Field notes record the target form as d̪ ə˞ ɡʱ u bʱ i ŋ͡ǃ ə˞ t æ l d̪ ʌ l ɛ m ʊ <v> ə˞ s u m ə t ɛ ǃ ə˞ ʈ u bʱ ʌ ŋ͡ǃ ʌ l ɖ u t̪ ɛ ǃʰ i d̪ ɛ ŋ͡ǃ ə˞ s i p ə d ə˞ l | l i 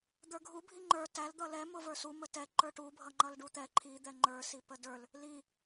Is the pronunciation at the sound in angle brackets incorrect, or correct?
correct